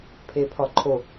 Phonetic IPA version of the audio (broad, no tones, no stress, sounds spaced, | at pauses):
pʰ e pʰ ɒ ǃʰ o